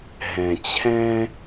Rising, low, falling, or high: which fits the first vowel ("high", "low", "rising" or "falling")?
low